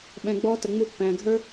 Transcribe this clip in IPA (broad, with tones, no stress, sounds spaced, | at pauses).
ɓ ɛ̃˨ ɡ͡b ɔː˧ t ə˨ ŋ͡m u˧ pː æ̃ː˨ ɡʱ ə˞˦